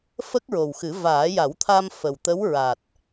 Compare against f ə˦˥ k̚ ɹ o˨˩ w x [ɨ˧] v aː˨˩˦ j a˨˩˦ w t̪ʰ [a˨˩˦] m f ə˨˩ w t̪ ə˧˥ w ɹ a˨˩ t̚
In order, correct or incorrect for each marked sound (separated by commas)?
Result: incorrect, incorrect